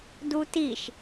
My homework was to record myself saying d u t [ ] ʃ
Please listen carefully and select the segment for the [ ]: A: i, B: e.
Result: A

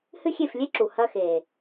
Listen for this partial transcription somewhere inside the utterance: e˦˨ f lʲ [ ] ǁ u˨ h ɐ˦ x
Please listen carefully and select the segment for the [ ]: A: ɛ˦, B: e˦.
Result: B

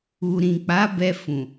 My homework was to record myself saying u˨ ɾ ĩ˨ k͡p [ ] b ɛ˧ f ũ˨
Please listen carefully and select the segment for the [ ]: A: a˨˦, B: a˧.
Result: A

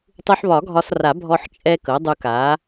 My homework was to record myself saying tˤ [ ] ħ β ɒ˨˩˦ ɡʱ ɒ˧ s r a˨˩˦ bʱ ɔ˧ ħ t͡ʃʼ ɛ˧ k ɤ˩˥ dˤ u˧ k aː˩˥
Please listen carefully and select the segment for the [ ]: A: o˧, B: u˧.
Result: B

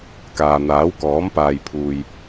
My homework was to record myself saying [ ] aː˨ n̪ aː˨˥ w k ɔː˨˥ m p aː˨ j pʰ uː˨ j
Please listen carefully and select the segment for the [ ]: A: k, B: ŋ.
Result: A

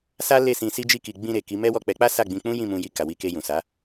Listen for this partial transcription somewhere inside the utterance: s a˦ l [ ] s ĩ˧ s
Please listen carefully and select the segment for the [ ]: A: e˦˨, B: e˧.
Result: A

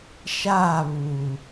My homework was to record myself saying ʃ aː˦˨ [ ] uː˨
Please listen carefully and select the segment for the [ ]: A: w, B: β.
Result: B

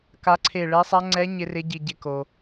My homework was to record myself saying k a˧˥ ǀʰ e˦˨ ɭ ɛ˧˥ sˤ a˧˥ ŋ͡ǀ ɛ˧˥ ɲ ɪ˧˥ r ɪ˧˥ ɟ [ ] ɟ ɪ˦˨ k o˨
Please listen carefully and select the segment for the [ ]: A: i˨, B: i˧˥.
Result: A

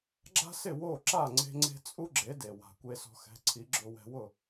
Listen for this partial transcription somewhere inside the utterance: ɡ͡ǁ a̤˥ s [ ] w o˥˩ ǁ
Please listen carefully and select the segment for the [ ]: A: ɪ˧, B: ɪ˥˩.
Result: B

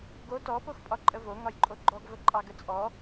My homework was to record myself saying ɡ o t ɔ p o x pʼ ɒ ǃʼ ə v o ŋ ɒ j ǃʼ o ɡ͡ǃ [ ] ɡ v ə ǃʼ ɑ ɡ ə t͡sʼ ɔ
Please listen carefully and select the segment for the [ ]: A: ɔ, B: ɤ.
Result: A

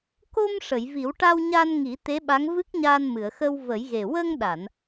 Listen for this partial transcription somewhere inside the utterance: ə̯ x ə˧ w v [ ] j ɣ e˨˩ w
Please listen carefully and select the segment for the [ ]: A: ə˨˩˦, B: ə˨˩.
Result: A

